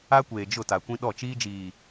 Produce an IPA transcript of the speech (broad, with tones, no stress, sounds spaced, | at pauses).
a˦ kʷ eː˨ d͡ʒ ʊ˦˨ t a˨ kʷ ĩ˦ ɗ ɔ˦˨ t͡ʃ iː˦ d͡ʒ iː˨